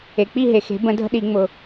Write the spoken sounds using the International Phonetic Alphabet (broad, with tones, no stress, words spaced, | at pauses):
e˩k͡pi˦˨ ɦe˩xe̤˩˧ bə̃˧˩˧dʱə̤˦˨ɗi˧˩˧ ŋ͡mʊ˩